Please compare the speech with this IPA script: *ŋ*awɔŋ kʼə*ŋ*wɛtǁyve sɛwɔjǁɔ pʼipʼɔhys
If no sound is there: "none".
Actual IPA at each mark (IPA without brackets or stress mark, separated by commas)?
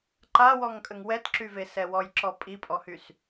ǃ, ŋ